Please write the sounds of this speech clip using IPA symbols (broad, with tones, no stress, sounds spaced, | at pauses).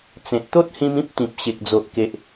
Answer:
t͡s ẽ˨ t̚ t̪ o˦ t̚ h ĩ˧ m ĩ˦ p̚ t̪ ĩ˨ p̚ ɕ e˨ k̚ d͡z o˨ ʔ k e˨ ʔ